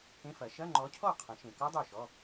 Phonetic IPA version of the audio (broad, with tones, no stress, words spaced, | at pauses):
kẽ˧˥˧ fɐ˨˩˦ ʃɐ˧˥˧ŋ͡ǃɔ˨˥cʰɔ˥˩ qʰə̃˨˩˦ ʃẽ˨kɔ˦˥ dˤo˥˩ʃɔ˧˥˧